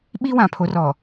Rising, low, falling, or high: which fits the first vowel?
high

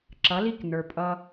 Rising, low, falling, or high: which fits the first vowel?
rising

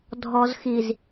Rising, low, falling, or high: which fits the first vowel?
low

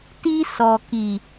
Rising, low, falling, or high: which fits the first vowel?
high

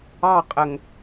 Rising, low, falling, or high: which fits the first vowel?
falling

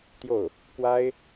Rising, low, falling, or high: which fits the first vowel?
falling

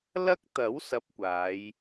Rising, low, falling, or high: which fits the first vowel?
high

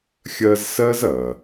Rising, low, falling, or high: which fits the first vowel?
high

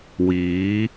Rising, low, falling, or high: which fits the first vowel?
rising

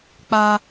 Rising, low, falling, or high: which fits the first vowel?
high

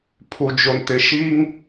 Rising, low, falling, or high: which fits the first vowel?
low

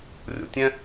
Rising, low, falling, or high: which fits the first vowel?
low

